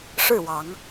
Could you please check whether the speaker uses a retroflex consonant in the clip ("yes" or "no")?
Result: yes